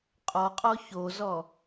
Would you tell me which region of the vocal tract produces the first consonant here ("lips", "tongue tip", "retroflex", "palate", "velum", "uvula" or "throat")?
uvula